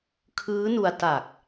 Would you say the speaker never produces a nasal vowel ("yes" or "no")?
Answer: yes